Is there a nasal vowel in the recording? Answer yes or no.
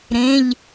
yes